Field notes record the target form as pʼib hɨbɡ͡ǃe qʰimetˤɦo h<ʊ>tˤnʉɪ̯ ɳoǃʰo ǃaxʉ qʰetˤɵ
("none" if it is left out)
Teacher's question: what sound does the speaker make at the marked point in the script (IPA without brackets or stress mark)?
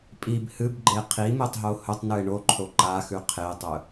ɵ